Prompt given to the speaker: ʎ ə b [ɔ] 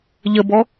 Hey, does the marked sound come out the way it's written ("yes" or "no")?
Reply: yes